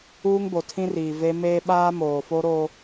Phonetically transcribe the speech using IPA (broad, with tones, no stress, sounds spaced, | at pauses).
uː˦ ŋ b o˨ tʰ ĩ˦ r iː˨ v e˦ m eː˦ ɓ aː˦ m oː˨ f o˦ ɾ oː˦